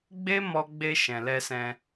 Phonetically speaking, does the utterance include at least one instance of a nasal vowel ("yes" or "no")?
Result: yes